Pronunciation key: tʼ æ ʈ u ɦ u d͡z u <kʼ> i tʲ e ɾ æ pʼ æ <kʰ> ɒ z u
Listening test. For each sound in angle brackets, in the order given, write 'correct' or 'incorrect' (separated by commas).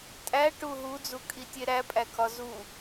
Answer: correct, correct